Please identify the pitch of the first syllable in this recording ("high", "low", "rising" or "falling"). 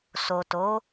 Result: low